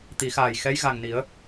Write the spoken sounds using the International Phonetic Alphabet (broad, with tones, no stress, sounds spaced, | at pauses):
t̪ i˨˩˦ x aː˨˩ j x ɛ˧˥ j ɣ a˨˩ ŋ n i˨˩˦ ə̯